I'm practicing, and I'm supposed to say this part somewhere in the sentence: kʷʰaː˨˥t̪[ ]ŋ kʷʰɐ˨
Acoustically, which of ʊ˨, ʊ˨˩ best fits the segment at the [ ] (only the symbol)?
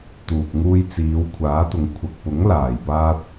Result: ʊ˨